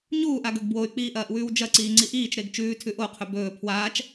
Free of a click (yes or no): no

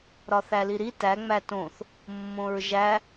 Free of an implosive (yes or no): yes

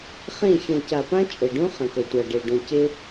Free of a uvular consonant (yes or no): no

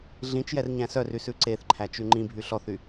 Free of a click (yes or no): no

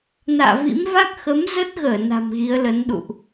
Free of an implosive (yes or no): no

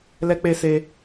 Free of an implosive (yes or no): yes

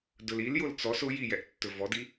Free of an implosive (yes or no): yes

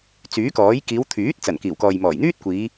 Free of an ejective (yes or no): yes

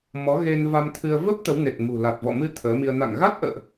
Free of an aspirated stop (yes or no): no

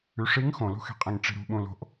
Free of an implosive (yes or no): no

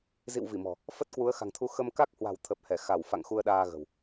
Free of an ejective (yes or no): yes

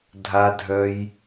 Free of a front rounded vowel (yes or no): no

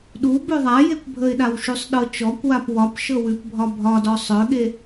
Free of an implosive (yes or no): no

